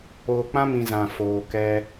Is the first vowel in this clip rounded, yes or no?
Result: yes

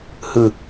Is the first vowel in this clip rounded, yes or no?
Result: no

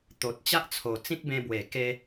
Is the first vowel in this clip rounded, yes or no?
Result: yes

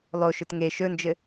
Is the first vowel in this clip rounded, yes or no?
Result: yes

